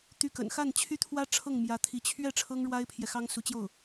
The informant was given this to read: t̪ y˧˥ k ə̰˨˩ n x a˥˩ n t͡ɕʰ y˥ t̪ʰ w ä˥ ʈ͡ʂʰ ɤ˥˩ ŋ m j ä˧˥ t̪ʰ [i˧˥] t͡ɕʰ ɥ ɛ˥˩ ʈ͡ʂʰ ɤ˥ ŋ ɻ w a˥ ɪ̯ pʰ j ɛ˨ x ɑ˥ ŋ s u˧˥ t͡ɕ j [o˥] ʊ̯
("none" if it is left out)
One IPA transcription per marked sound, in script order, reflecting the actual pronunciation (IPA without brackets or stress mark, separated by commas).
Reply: i˧˥, o˥˩